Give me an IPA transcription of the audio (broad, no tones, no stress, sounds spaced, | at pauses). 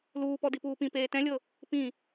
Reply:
l uː p ɔ d i p uː p ĩ p eː t ɛ̃ lʲ ɤ | p ĩ